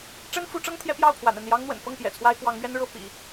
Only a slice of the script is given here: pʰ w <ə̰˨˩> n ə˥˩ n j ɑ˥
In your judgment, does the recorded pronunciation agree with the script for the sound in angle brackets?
no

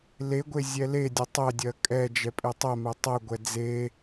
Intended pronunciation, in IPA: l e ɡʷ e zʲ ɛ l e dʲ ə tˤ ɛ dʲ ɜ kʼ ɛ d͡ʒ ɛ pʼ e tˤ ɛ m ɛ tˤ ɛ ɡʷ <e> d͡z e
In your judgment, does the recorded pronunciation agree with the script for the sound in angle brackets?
no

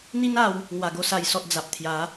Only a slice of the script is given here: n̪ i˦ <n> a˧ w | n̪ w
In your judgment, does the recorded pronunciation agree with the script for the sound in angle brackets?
yes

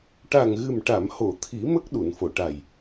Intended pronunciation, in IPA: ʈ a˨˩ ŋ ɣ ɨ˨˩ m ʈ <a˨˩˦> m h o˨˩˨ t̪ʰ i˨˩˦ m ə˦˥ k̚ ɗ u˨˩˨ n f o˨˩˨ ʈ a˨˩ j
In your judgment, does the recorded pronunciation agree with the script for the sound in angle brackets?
no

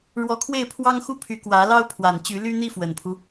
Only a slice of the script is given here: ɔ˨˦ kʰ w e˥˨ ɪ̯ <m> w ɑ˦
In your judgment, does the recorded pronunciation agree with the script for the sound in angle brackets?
no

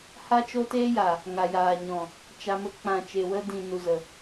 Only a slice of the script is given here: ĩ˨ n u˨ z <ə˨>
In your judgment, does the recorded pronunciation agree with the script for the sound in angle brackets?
yes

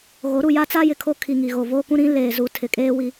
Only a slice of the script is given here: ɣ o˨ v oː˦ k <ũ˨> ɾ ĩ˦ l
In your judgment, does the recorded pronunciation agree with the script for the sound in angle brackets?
no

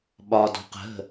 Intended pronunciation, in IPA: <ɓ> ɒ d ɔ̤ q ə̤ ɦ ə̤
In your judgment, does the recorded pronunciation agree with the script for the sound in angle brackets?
yes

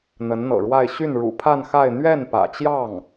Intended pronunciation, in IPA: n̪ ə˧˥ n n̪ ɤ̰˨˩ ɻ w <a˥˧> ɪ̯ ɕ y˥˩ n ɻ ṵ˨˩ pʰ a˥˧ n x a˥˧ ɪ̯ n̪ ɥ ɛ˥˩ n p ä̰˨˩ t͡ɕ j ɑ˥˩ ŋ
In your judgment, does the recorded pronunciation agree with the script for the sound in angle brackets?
yes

